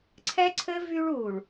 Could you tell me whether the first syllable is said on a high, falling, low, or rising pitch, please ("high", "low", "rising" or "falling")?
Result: high